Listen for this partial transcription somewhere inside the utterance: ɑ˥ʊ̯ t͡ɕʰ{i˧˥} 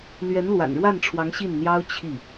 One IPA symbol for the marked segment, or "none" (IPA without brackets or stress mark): i˥˩